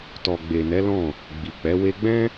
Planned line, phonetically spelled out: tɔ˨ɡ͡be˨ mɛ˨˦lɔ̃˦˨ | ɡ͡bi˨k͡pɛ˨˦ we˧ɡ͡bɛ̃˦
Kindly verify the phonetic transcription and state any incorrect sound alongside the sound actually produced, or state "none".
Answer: m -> n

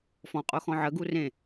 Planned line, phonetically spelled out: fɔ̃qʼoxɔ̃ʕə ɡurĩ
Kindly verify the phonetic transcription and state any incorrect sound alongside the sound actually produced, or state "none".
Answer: ĩ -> ẽ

